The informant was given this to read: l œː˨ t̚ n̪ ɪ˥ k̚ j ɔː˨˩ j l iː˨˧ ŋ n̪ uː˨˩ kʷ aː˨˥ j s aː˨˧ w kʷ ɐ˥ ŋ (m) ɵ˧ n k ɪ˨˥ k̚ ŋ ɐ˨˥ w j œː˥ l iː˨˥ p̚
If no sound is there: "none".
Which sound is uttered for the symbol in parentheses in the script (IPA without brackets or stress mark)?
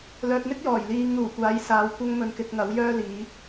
m